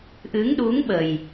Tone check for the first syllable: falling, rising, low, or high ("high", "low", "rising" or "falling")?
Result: rising